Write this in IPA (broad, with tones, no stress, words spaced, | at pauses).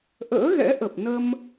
ʔə̰ː˧˥ɣɛ̰˧˥ʔə˨˩p̚ nə˧m